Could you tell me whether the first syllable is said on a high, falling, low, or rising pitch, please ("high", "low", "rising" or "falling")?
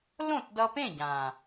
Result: falling